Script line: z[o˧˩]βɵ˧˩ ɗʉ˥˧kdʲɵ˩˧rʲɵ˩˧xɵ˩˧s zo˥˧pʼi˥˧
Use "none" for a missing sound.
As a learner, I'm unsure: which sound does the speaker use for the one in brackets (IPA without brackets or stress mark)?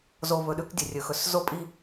o˧